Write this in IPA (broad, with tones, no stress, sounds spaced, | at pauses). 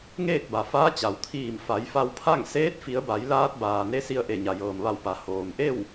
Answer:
ŋ eː˥˨ k̚ b a˩ f aː˧˥ t͡ɕ a˩ w t̪ʰ iː˧˩ m f a˩˧ j f a˧ w pʰ a˥˨ ŋ s eː˧˥ t̚ f i˩˧ ə̯ b a˩˧ j l aː˧ t̚ b aː˩ n e˧˥ s i˧ ə̯ ʔ e˧˩ ɲ a˩ j ɤː˩ m ʋ a˧˩ w p a˩˧ h oː˩ m ʔ e˥˨ w